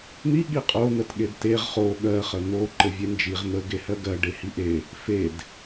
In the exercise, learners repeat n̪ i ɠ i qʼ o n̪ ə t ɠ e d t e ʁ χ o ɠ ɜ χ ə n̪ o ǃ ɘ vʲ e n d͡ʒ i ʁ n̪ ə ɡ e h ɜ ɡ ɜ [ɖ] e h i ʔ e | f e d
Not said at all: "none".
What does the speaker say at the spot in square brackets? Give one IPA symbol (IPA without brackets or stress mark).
ɖ